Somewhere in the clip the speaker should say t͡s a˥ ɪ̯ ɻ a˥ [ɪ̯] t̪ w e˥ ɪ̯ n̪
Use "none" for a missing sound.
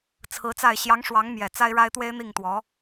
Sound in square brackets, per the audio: ɪ̯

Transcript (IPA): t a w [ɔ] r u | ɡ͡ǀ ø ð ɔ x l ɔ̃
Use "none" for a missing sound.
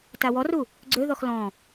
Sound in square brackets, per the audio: ɔ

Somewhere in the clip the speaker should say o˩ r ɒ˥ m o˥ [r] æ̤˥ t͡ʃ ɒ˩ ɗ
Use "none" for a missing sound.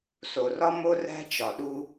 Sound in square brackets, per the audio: r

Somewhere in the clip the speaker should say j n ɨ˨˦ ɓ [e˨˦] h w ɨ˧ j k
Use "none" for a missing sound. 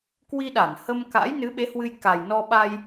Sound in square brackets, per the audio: e˨˦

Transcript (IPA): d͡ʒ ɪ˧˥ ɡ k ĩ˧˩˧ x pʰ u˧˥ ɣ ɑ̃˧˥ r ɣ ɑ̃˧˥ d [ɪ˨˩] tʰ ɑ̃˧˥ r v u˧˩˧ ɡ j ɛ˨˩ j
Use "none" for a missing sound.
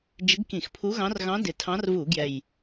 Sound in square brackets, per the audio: ɪ˨˩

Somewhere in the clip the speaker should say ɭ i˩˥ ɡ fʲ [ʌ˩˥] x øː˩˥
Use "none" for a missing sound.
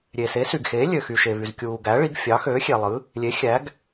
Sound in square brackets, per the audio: ɑ˩˥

